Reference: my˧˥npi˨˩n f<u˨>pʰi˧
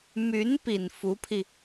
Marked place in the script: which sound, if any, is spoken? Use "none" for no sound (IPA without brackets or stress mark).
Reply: u˧˥